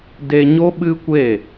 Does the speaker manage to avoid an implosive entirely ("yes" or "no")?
no